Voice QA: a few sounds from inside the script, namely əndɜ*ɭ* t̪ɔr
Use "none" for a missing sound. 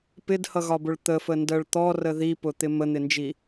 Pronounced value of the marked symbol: ɭ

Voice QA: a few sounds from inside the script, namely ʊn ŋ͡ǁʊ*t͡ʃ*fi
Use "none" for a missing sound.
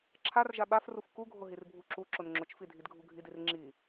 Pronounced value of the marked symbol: t͡ʃ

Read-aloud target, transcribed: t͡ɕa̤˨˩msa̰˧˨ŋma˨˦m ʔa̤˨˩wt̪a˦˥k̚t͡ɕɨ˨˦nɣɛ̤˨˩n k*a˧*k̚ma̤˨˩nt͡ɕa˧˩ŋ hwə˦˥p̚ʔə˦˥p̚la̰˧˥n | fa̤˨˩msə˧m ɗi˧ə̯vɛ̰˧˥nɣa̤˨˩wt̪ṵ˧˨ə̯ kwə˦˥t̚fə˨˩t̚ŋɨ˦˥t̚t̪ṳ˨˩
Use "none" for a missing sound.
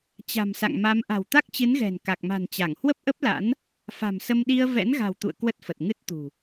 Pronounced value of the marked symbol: a˨˩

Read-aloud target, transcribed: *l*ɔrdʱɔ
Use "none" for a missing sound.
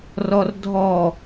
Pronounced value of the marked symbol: r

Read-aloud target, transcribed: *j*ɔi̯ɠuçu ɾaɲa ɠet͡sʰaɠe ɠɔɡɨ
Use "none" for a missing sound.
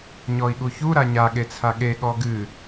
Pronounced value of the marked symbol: ɲ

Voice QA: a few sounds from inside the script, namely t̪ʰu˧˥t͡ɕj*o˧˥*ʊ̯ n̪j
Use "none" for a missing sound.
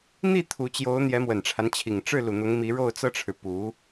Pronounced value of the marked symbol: o˧˥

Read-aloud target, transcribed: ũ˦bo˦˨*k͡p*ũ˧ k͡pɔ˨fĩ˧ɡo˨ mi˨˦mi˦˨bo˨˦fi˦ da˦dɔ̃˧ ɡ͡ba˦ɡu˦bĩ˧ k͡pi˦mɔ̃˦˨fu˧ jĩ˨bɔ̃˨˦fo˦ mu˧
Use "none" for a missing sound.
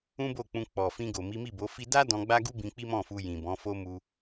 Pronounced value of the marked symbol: k͡p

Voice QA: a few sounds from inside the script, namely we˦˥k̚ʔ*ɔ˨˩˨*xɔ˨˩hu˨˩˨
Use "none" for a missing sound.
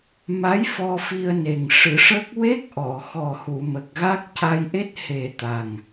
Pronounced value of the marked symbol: ɔ˨˩˨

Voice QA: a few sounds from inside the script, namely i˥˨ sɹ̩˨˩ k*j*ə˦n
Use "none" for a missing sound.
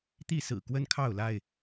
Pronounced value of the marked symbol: w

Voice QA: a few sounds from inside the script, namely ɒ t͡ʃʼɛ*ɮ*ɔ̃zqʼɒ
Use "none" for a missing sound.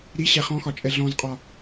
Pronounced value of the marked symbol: ɮ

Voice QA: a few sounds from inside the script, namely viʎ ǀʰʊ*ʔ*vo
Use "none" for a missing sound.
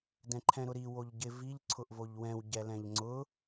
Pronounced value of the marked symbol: ʔ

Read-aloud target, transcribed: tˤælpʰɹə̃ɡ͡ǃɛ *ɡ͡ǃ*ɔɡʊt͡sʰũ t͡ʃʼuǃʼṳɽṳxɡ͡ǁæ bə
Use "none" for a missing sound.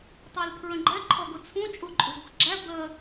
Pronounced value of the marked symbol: ǃʰ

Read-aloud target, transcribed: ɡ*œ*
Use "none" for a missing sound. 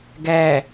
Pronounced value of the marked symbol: æ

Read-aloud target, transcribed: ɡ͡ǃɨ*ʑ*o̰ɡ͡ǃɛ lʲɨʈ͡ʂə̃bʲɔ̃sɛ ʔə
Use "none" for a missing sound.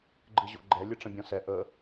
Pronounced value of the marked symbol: ʑ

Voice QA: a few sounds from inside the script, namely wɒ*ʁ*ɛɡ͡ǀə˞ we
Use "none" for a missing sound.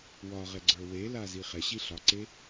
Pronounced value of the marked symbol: ʁ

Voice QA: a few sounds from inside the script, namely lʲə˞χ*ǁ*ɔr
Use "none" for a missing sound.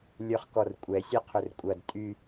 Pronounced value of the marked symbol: k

